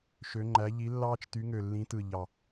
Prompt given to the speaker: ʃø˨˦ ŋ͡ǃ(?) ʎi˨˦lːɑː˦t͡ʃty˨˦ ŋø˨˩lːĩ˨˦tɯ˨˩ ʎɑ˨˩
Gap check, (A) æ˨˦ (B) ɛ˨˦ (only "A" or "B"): A